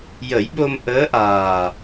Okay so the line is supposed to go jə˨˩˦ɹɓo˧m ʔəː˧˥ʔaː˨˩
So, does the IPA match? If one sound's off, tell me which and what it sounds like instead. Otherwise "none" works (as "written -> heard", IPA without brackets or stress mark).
ɹ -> j